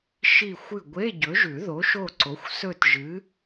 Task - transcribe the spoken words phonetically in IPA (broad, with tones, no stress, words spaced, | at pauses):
ʃi˦˨xʷɨ˦˨ ɡʷe˧˥˧ɟɵ˨˥ʒʉ˨˩˦ðo˨˥ ʃo˦˨ǀo˨˥xʷ sɵ˦˨tʒɨ˨˥